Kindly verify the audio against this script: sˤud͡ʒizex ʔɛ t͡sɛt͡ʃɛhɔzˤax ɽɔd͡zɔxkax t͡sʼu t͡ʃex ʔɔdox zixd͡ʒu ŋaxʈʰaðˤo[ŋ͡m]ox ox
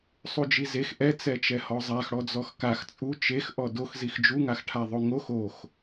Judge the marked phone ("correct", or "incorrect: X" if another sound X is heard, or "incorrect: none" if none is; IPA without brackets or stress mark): incorrect: ŋ